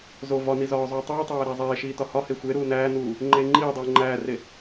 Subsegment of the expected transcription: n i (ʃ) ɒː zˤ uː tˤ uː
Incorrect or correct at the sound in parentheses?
incorrect: z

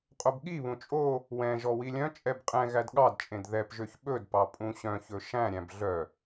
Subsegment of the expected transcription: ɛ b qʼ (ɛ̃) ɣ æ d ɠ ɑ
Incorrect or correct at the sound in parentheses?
correct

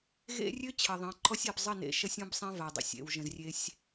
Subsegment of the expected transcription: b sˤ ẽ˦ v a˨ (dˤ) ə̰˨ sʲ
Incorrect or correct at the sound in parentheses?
correct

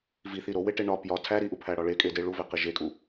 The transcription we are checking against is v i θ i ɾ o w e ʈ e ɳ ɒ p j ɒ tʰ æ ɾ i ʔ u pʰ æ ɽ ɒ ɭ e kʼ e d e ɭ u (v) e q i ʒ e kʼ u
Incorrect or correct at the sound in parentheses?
correct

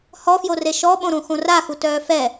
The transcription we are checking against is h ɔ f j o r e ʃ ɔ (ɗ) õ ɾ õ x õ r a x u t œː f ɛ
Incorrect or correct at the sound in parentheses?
incorrect: ɓ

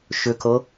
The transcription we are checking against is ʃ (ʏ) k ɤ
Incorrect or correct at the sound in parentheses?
correct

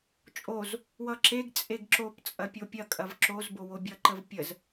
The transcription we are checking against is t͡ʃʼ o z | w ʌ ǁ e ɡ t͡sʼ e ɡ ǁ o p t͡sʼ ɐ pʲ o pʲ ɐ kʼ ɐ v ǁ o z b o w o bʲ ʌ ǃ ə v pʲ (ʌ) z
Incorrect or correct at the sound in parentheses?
incorrect: ə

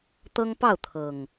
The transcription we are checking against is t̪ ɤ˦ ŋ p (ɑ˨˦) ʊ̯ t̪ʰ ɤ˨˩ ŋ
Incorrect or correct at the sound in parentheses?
incorrect: ɑ˥˨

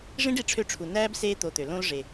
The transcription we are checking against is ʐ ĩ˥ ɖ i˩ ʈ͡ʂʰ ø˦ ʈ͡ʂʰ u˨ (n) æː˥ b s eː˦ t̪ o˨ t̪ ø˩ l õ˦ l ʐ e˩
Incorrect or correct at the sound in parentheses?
correct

